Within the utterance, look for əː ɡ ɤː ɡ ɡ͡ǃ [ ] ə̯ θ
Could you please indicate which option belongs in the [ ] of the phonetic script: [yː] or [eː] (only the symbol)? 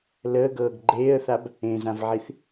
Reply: eː